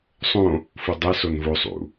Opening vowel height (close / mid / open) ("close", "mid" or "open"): mid